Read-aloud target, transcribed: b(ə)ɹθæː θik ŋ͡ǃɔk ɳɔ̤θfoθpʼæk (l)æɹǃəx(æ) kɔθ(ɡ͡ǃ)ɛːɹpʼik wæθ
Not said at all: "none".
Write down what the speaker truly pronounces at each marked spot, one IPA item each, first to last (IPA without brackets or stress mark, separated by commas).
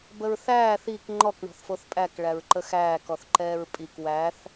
ə, ɭ, æː, ǃ